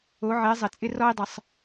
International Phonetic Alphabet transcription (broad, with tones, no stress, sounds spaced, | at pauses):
o˩˧ ʕ ɪː˩˧ zˤ ɘ˩ t͡sʼ ɪ˧ r ɔ˧ i̯ dˤ ə˩ sˤ